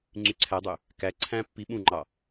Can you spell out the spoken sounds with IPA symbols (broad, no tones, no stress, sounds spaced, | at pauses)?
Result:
ŋ͡ǀ y ǀʰ æ dˤ ø | k æ ǀʰ æ̃ pː i ɓ ũ ŋ͡ǃ ɑ